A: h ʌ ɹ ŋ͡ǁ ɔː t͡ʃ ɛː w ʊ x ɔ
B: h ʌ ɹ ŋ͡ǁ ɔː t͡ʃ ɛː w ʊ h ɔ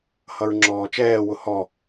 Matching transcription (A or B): B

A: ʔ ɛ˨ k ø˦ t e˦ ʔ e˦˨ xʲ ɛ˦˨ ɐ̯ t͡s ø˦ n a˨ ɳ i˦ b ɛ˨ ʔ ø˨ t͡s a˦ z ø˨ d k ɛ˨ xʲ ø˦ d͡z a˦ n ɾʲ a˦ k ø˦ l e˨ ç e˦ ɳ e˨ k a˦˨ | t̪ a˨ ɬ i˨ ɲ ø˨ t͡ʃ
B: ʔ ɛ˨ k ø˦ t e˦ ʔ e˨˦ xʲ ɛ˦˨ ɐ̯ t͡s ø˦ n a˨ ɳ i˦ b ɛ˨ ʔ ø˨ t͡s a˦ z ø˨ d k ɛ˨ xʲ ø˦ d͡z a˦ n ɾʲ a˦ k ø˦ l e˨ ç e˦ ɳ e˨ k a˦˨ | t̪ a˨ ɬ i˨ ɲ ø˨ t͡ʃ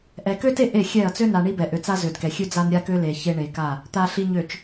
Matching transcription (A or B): A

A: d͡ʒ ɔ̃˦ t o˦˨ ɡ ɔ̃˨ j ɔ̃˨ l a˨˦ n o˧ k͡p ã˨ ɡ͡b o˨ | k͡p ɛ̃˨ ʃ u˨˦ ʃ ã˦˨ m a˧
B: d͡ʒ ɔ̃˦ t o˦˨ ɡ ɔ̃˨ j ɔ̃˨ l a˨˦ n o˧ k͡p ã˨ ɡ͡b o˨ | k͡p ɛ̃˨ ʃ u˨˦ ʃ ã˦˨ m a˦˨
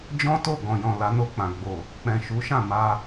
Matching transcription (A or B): A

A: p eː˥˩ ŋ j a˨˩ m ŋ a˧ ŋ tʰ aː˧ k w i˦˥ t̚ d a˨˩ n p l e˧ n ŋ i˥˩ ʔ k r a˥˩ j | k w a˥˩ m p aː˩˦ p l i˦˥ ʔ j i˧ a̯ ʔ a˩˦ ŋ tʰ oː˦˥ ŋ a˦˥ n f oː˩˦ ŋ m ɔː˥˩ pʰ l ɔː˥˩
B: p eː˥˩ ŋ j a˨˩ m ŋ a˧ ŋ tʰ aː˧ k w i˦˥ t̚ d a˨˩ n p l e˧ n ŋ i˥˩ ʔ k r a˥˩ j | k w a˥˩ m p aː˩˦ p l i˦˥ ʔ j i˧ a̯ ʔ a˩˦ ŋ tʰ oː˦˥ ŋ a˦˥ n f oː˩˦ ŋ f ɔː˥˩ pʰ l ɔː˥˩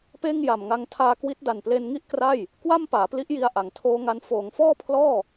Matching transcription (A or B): B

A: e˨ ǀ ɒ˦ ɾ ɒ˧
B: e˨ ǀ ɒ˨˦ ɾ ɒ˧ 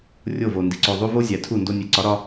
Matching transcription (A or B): B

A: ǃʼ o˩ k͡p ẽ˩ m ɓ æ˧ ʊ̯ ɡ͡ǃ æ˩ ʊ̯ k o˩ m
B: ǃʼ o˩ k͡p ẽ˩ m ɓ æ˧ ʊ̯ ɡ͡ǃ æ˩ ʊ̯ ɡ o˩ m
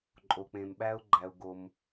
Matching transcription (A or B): B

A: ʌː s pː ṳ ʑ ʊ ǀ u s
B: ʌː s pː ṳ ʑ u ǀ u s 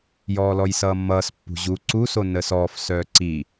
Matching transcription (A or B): B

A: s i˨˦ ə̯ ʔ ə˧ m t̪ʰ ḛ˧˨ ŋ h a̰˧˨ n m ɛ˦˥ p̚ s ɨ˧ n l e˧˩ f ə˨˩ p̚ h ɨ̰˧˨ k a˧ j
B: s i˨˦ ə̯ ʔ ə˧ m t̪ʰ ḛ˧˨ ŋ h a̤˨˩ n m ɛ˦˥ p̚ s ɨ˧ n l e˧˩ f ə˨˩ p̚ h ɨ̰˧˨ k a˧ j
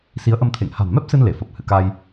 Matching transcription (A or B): B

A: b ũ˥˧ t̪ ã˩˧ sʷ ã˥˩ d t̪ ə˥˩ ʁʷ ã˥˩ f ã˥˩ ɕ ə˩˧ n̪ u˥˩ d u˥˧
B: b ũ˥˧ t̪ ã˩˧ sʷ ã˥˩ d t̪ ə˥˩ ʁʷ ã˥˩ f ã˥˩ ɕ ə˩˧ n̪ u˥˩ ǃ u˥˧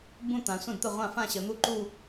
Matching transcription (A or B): B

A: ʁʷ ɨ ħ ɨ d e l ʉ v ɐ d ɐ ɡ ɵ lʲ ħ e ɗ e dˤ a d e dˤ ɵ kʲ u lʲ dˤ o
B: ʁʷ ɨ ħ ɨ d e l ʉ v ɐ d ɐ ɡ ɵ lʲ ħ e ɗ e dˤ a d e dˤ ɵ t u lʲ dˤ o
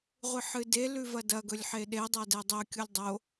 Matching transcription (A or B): A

